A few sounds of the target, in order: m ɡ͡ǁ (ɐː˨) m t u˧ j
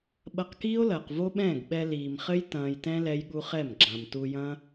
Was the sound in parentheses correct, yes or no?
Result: no